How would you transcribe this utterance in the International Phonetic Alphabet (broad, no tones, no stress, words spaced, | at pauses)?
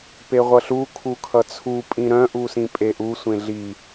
peʁʷʌɬu kʰukʰʌt͡sʰu pʼĩɾœ̃ ʔusĩpʼeʔu sʷẽɮi